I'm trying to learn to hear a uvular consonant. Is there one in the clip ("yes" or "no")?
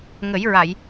no